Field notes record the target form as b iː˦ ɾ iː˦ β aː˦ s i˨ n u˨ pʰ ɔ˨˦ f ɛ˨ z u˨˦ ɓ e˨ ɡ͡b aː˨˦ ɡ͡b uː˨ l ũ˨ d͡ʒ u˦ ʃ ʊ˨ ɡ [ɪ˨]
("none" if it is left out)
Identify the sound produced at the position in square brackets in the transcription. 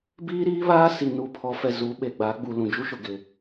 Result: ɪ˨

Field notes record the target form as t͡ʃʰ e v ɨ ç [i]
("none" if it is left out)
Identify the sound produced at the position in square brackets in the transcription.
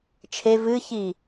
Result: i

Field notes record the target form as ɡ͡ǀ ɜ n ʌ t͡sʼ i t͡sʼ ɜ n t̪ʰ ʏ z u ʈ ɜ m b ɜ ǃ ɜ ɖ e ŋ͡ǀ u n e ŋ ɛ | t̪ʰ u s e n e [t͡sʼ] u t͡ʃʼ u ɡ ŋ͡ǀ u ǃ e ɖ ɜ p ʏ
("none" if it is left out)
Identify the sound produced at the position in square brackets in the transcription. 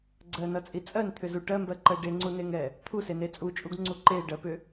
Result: t͡sʼ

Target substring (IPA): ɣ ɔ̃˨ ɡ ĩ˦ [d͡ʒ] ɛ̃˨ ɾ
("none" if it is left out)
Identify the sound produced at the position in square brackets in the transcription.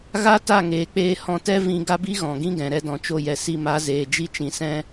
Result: ɡ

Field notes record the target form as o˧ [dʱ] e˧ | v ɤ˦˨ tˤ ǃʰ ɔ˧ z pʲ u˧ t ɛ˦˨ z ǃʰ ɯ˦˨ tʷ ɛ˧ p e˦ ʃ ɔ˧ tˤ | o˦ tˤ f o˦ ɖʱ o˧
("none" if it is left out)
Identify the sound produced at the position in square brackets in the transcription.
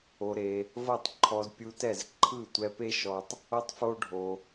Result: ɾ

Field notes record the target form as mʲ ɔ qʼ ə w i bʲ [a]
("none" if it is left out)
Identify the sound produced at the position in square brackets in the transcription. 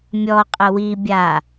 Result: a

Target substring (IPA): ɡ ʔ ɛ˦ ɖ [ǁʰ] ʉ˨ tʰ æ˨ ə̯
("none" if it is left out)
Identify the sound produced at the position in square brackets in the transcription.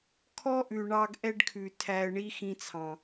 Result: kʰ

